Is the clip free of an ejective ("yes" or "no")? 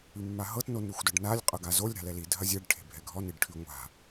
no